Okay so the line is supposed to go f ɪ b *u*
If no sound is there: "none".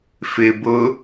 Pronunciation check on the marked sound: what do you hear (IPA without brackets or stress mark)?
ʊ